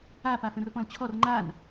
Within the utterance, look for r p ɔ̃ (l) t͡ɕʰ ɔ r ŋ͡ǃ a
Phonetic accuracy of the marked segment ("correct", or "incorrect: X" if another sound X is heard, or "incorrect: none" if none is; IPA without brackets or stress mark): correct